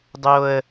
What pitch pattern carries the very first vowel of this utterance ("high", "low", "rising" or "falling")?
high